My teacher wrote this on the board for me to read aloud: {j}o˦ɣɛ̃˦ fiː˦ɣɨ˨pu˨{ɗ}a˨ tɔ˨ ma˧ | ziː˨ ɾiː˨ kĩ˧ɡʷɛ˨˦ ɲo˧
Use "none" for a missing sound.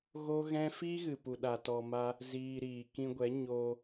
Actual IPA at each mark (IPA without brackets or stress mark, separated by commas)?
ɣ, ɗ